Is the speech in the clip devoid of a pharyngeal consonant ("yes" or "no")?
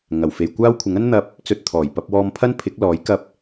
yes